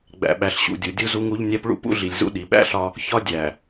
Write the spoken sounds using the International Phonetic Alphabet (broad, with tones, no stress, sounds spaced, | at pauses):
ɡ͡b æ̰˨ ɓ æ˨ ɬ ɕ ṵ˨ dʲ u˨ dʲ u˦ z u˦ ŋ u˦ ʎ nʲ æ˦ p ɭ ṵ˦ p ṵ˦ ɮ i˨ lʲ z ṵ˦ ɗ i˨ ɓ æ̰˦ ɬ ɒ˦ | ç ɒ˦ dʲ æ˨